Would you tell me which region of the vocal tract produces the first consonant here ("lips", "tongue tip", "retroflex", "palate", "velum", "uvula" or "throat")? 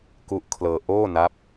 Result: velum